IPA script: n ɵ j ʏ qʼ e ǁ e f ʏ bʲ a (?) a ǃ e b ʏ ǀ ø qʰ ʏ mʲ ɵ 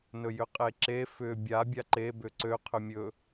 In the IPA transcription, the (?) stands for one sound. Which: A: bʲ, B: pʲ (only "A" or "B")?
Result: A